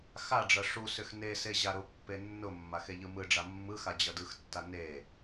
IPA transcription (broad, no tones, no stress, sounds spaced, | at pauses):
x a ɖ͡ʐ ʌ ʂ u s ʏ x n e s e ʑ a ɾ ʊ pː e nː ʊ mː a x e ʎ ɯ m ɯ ɖ͡ʐ a mː ɯ x a d͡ʑ ʌ d ɯ x tː a n e